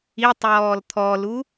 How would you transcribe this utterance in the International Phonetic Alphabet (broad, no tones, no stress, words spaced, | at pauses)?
itˤjɔːl t̪ʰɔlu